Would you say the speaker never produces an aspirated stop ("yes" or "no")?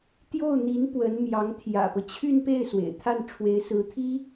no